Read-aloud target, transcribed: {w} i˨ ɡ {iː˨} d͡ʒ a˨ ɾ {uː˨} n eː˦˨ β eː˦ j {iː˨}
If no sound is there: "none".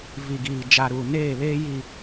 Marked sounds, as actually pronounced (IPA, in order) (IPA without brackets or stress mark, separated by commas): v, iː˨, uː˨, i˨